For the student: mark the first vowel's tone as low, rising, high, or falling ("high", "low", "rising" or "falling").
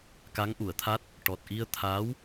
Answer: rising